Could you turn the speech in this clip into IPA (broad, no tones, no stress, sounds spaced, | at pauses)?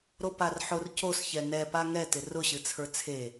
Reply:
ɾ o p a r ħ ʊ r c o s ç ɛ n ɛ p a ŋ ɛ t ɪ r ʊ ɕ ɨ t͡sʰ ə˞ t͡sʰ e